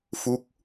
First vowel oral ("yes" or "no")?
yes